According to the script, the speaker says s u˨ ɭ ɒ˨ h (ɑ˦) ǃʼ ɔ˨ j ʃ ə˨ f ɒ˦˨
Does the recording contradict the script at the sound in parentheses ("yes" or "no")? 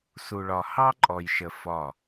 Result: no